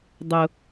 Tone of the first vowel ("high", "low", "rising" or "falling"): low